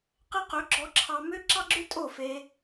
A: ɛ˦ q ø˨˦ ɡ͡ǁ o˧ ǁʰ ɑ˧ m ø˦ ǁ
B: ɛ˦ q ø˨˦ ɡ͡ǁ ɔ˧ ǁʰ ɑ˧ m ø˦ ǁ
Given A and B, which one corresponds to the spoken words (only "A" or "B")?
B